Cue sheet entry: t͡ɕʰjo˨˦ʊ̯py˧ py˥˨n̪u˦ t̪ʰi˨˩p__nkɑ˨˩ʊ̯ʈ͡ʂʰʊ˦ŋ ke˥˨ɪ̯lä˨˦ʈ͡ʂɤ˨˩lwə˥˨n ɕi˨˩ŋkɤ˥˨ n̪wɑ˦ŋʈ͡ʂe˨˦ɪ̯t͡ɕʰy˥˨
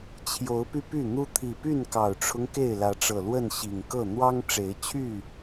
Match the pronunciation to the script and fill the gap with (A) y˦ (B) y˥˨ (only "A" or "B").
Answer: B